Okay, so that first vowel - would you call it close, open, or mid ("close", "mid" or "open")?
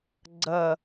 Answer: open